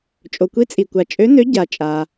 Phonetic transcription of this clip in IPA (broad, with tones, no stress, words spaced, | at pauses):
t͡ʃʼo˩kʷi˨˥t͡sʼi˩kʷa˩ t͡ʃʼø˨˥nø˨˥ ɟa˩t͡ʃʼa˩